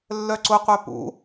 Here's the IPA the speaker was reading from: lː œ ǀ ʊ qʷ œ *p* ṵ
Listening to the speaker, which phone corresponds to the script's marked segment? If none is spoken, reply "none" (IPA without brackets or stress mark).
p